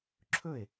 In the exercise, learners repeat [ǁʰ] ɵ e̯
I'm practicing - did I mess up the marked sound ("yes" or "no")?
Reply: no